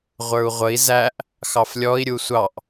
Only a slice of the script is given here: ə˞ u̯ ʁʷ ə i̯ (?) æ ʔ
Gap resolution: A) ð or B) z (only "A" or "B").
B